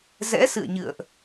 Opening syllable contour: rising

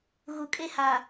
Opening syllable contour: low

